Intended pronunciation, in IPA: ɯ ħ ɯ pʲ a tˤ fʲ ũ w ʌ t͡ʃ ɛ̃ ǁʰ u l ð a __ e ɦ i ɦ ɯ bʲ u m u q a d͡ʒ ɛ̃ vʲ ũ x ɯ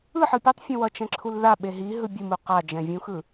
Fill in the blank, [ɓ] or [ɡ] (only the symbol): ɓ